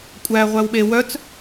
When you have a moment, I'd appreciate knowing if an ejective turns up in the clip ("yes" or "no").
yes